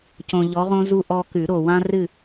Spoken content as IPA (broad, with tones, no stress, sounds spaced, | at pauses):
c õ˨ ʎ ɔ˨˦ ʁ õ˦ z u˦ ʔ ɔ˦ k ʉ˨˩˦ ɾ o˨ w ã˦ r ɨ˦˨